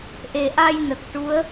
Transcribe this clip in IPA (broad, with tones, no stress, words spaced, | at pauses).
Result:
ʔe˨˩ʔa˧jnə˨˩k̚ ʈu˧˥ə̯